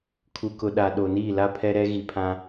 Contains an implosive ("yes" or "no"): yes